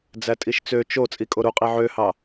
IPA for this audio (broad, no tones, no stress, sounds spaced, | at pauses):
d͡z æ tʼ i ʃ t͡s ø t͡ʃ o t͡sʼ i kʼ o ɾ u qʼ i ʕ ø h ɑ